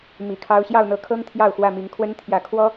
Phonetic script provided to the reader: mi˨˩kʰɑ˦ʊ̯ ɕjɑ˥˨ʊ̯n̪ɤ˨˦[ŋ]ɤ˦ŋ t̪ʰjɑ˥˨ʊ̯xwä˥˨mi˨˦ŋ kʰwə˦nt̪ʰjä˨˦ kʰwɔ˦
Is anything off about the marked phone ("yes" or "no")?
yes